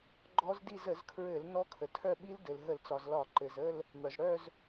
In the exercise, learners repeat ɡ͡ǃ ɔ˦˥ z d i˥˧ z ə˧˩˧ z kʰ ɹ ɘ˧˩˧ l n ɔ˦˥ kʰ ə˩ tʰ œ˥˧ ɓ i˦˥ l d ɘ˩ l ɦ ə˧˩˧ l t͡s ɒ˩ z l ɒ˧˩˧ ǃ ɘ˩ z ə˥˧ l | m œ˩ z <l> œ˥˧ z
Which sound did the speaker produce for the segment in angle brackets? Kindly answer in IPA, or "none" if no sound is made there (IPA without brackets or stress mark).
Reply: ɽ